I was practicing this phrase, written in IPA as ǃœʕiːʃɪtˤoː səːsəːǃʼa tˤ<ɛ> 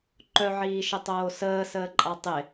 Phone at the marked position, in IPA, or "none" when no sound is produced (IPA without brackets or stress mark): ɪ